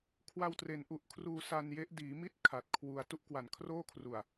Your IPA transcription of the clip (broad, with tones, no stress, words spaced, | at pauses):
kʰwa˧wtre˩˦n ʔu˨˩ʔkʰruː˧sa˧nje˦˥ʔ diː˩˦mi˥˩t̚ kʰa˨˩t̚kʰwu˧a̯ tu˥˩ʔkwa˨˩nkʰroː˥˩kʰru˨˩a̯